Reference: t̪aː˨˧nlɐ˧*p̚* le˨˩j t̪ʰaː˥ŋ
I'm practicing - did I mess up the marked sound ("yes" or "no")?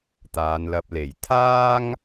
no